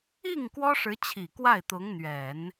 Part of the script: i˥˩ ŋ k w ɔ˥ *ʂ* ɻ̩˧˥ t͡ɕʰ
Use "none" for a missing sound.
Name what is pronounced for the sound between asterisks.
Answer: ʂ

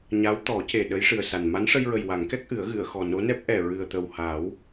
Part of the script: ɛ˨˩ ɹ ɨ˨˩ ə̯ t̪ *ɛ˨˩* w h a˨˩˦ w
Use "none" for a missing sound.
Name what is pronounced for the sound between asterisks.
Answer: ə˨˩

